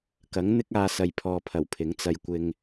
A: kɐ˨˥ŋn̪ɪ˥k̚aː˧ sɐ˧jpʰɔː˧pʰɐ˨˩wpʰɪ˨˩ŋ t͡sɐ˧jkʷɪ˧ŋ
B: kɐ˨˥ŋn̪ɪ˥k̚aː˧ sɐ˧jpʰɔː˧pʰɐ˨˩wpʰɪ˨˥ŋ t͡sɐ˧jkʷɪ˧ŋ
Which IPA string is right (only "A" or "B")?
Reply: B